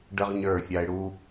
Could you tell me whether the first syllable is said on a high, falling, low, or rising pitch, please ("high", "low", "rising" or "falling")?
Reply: high